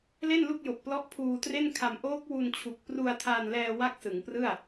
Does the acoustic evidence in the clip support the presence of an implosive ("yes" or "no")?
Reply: no